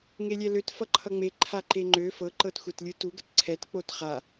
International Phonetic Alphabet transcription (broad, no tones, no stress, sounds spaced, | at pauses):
ŋ e lʲ ɛ l ø t f ʌ ǃʰ ʌ ŋ͡m e ǃʰ a ǃ e ŋ͡ǃ ø f ɤ ǃ ɤ t xʷ ɛ t lʲ ɯ t u ɡ ə t ǀʰ ɛ t k͡p o t χ a